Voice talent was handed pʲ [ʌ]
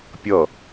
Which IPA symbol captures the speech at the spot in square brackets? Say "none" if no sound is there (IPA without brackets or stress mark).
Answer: ʌ